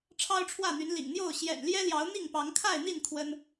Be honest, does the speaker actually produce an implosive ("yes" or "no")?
no